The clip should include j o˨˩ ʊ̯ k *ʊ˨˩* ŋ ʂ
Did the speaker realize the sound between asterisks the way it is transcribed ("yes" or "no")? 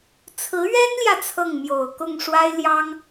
no